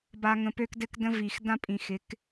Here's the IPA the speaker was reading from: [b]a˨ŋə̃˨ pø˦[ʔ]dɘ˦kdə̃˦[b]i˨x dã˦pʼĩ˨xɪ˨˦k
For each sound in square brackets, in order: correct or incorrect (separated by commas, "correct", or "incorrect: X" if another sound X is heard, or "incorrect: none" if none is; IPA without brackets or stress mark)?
correct, incorrect: k, incorrect: v